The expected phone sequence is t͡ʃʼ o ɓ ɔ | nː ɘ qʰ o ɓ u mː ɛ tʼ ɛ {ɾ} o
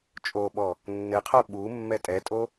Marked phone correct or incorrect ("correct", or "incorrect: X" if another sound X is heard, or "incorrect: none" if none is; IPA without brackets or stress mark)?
incorrect: tʼ